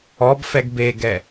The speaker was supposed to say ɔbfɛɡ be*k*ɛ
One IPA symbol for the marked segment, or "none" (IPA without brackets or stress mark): ɡ